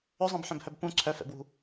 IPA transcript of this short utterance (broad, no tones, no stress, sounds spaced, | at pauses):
ɵ zˤ ɛ̃ b ħ œ̃ b h œ b p ũ ǀʰ œ f ɛ̰ b w ṳ